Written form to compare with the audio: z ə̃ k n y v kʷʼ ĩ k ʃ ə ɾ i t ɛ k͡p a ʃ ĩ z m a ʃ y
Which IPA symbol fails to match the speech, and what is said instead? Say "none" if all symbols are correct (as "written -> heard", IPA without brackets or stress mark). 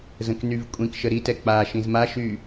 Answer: none